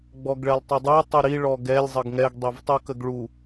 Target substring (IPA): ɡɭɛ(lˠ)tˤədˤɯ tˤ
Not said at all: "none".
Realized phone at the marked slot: lˠ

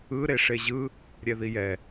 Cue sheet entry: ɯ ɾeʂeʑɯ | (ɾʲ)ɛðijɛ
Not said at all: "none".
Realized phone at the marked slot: ɾʲ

